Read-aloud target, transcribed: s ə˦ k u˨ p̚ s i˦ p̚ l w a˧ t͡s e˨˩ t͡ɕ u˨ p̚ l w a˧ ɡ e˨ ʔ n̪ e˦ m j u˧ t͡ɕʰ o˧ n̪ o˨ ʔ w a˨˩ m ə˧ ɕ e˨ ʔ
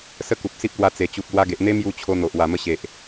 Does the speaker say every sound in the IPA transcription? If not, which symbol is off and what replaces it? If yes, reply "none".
none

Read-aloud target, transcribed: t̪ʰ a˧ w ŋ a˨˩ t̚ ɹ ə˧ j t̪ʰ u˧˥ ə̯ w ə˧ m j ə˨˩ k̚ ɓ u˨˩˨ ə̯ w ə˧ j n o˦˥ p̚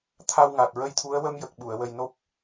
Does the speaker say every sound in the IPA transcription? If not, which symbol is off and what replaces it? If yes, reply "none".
none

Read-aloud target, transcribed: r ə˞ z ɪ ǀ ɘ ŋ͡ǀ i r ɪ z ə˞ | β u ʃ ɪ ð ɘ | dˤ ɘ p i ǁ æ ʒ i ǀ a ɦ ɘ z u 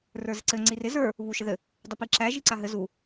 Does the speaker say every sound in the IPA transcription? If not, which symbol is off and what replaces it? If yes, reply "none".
none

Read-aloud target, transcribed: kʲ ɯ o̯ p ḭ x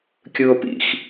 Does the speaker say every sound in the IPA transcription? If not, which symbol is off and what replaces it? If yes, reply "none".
none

